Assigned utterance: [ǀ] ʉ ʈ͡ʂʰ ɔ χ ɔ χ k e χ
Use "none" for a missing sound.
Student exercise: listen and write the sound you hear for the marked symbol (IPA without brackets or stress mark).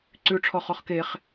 ǀ